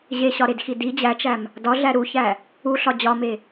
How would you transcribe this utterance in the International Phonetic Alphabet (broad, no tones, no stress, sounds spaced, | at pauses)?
ʑ e ɕ ɒ ɾ e d x i d i d͡ʑ æ t͡ʃ æ m | d ɒ ɮ æ ɾ u ç æ | u ɬ ɒ d͡ʑ ɒ m e